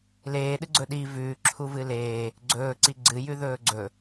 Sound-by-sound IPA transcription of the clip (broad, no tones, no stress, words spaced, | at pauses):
leːɗɨɡ͡ǀɵ ɗi vʉːǁʰuvɨ leː | ɡ͡ǀɵːǀi ɡ͡ǀɨjʉðɵː ɡ͡ǀɵ